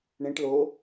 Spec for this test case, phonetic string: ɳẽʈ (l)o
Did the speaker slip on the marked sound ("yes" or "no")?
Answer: no